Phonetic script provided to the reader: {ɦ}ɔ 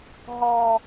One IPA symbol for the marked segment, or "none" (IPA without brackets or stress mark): ɦ